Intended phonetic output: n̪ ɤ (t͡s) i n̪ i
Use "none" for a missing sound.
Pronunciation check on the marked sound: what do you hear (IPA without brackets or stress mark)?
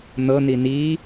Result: n̪